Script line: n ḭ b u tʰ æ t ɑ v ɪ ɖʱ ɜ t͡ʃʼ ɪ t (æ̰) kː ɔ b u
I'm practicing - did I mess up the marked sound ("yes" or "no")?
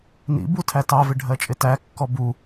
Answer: yes